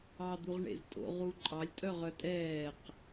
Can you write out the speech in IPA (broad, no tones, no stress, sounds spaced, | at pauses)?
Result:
ɑ d̪ u ʁ ɳ ḛ z tʼ o̰ ʁ u ǃʼ ɑ lʲ tʼ œ ʁ œ tʼ ɛː q